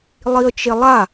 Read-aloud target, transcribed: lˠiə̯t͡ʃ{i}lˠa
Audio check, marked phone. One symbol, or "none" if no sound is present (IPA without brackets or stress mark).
e